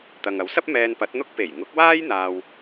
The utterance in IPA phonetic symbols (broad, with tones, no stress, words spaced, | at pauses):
t̪ɐ˨ŋɐ˨˥wsɐ˥p̚ mɛː˧npɐ˨˥t̚n̪ʊ˥k̚ pe˨˩jŋʊ˨˥k̚waː˥j n̪aː˥w